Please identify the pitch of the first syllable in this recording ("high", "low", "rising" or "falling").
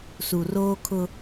low